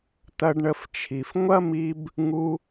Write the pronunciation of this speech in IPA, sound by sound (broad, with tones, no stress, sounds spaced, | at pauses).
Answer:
t̪ ɐ˧ ɖ ɳ ə˧ f t͡ʃʰ i˩ f ŋʷ ɐ˥ m i˧ b | ŋ u˧